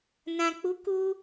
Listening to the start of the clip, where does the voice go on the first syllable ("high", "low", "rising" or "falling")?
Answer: low